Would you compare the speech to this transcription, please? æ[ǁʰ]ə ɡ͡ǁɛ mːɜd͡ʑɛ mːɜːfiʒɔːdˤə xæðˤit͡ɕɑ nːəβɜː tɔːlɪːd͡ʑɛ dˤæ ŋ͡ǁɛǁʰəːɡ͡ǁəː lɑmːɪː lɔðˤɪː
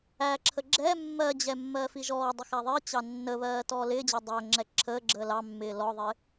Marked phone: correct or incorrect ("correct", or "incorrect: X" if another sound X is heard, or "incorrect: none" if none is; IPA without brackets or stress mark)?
correct